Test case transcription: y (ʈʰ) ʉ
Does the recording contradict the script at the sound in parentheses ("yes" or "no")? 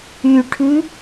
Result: no